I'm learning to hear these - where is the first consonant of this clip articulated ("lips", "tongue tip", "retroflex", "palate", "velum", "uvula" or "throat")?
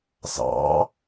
tongue tip